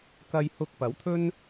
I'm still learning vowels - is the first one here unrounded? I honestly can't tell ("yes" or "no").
yes